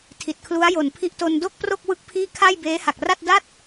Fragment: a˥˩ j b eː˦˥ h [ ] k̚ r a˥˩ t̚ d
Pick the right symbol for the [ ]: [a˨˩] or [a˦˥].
a˨˩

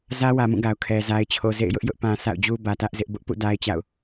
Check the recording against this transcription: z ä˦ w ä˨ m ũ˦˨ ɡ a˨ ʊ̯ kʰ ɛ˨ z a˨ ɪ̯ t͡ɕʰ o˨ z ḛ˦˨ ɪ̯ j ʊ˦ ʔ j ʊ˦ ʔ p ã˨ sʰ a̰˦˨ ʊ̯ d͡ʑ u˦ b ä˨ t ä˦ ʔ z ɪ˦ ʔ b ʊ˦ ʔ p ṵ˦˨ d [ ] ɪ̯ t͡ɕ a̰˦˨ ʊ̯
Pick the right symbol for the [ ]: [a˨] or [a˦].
a˦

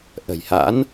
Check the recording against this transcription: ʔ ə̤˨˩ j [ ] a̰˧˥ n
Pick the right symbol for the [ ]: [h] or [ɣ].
h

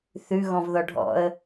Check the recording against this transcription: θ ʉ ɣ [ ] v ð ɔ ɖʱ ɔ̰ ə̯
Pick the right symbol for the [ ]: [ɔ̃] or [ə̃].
ɔ̃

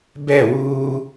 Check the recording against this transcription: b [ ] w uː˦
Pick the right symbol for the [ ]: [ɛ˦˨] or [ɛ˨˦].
ɛ˦˨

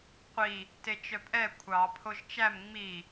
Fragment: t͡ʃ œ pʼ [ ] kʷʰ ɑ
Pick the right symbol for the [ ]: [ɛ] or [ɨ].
ɛ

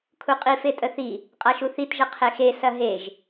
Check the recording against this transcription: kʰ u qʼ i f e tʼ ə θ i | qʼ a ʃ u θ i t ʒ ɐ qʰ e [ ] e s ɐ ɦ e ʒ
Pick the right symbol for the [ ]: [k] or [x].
x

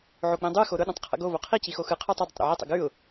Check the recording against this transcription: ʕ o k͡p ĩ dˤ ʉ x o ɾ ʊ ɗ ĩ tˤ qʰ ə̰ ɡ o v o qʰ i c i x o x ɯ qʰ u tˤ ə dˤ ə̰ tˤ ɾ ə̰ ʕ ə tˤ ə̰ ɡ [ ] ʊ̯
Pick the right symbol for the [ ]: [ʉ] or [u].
ʉ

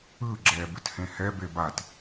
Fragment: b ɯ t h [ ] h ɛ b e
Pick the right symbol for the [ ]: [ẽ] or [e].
ẽ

